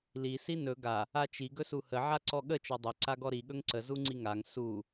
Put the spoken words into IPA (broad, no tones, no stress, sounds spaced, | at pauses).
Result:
l i s i n ɵ ɡ a | a t͡ʃ i ɡ ɵ s u h ə ʕ a ǀ ɔ ɠ ə t͡ʃ ɔ dˤ ɵ ǀ a ɡ ɔ ɾ i ɠ ɵ ŋ ǀ ə z u ŋ͡ǀ i ŋ a ŋ s u